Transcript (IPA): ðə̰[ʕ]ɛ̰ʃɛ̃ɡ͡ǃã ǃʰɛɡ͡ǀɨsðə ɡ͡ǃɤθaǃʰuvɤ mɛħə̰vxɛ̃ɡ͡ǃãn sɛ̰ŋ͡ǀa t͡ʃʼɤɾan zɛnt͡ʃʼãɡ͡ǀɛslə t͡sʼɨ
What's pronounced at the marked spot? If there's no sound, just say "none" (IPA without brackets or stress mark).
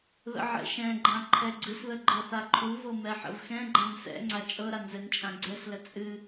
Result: ʕ